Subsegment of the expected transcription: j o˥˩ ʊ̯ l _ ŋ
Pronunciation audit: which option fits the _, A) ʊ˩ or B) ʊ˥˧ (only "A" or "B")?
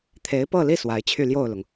A